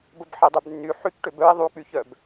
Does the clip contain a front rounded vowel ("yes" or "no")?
yes